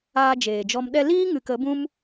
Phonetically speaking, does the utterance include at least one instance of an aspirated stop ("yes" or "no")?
no